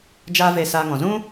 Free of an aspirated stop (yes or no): yes